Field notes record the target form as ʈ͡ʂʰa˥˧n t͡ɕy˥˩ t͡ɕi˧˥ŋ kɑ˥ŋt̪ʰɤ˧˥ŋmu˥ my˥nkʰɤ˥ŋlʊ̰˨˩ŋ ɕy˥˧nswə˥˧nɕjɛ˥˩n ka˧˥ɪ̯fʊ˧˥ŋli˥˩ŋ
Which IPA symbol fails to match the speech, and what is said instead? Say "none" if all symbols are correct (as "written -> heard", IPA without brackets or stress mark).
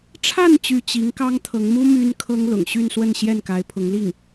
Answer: f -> pʰ